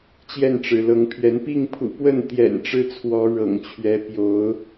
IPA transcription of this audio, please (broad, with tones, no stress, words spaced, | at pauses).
t͡ɕjɛ˥˨nʈ͡ʂɻ̩˩lɤ˨˦ŋpʰɥɛ˨˦n pi˥˨ŋpʰṵ˨˩pwə˥˨nt̪jɛ̰˨˩n ʈ͡ʂɻ̩˦t͡sʰwɔ˨˦ ɻɤ̰˨˩ŋt͡ɕʰɥɛ˨˦ pjo˨˦ʊ̯